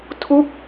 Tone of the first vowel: falling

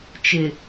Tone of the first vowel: low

